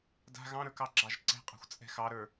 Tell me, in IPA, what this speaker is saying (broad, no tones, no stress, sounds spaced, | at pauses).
d a̤ ɣ ɑ̃ ɾ ə˞ k ɑ ɡ͡ǁ ɑ ʒ ǀ ɛ̤ qʼ ɑ̤ xʷ t͡sʼ ɛ̤ x ɑ ɾ ə˞